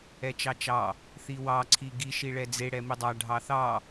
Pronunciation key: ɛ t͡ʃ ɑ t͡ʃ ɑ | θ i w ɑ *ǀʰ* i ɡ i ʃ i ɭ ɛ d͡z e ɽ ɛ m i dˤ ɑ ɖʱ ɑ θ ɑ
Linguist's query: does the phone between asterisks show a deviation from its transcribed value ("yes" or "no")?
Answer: no